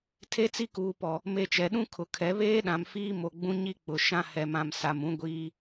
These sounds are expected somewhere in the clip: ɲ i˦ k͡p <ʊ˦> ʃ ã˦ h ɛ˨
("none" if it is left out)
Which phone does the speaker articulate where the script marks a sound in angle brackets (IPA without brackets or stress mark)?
ʊ˨